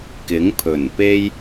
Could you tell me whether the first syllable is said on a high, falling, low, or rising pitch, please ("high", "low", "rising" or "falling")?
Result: rising